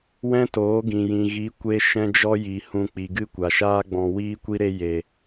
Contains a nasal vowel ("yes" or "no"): yes